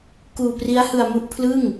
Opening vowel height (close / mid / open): close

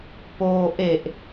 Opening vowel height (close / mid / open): mid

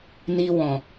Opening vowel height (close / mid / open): close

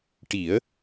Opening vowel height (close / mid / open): close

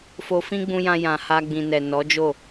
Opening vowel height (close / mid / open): mid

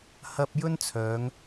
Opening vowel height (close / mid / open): open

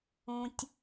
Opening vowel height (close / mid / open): close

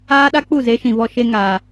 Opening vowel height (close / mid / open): open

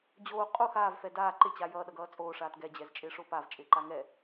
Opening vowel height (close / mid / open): mid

